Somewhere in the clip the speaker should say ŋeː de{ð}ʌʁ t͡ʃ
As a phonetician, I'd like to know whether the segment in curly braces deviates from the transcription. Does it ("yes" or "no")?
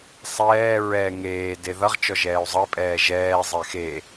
no